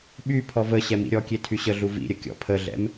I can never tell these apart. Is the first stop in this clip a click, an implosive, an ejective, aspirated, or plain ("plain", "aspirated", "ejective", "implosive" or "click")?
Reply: implosive